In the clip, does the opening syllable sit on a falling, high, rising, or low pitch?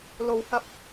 low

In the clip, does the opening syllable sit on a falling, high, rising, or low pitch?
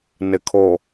low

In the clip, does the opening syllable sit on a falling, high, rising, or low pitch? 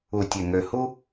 low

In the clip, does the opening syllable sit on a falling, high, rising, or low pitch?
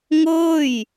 falling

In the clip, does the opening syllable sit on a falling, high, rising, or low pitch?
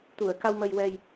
low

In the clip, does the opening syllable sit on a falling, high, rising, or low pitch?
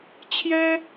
high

